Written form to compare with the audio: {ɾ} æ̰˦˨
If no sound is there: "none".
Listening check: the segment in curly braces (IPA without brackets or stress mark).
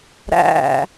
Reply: ɾ